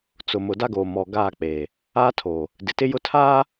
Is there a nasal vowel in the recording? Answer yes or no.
no